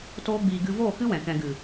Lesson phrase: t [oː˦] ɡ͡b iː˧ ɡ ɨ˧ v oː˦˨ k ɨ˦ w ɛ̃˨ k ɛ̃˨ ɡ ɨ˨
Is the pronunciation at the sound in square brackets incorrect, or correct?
correct